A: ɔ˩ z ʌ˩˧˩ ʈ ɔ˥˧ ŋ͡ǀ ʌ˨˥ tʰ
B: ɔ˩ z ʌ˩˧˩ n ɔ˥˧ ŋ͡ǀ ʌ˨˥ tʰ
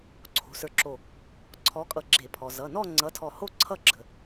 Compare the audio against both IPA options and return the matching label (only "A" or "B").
B